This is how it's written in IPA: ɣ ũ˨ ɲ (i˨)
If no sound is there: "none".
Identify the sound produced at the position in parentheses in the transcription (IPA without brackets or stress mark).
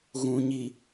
i˨